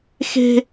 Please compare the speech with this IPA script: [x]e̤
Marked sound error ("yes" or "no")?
no